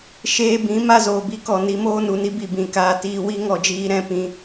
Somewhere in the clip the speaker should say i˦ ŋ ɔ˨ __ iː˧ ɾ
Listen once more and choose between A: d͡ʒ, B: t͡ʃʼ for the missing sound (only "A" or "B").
A